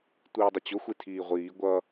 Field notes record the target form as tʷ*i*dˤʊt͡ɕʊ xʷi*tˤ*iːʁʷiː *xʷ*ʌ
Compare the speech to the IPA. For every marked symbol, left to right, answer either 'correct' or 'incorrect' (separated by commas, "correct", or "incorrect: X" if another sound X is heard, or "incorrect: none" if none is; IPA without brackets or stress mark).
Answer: incorrect: iː, incorrect: tʰ, incorrect: ɡʷ